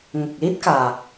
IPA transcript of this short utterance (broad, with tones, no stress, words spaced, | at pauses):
ŋə˨˩k̚li˦˥t̚kaː˨˩